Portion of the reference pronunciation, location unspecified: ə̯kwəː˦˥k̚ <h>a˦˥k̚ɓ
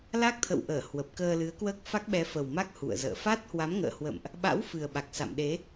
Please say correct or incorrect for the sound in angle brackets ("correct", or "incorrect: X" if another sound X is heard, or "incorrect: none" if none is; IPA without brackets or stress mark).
incorrect: f